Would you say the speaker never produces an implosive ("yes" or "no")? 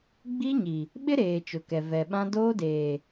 no